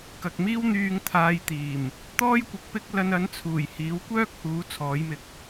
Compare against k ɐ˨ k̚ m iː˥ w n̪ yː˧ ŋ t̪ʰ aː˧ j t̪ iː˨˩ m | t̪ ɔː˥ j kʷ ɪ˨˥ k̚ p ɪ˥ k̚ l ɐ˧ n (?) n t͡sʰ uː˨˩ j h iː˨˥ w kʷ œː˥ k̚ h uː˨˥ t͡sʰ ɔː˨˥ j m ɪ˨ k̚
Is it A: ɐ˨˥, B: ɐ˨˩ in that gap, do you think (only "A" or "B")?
A